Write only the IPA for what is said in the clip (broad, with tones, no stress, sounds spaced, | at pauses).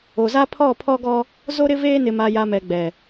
o˨ z a˦ pʰ ɔ˦˨ pʰ ɔ˦ ɡ ɔ˦ | z o˦ ɾ ɪ˦ v eː˦ n ɪ˨ m a˨ j a˨ m ɛ˨ ɡ͡b ɛ˨